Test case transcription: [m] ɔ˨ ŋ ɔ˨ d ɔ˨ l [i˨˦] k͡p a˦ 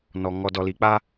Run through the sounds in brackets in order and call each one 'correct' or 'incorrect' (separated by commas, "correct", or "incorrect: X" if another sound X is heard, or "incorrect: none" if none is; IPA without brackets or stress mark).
incorrect: n, incorrect: i˨